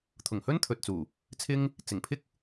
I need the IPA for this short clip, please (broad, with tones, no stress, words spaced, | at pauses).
t̪ʰʊ˨˩ŋhɵ˥n t̪ʰɵ˨t̚t͡suː˨˩ | t͡sʰɪ˥ŋ | t͡sɪ˨˩ŋpʰɪ˥k̚